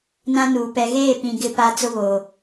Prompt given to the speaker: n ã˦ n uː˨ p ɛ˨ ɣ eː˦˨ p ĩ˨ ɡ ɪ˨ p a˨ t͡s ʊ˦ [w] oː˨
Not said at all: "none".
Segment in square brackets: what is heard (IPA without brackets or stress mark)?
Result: β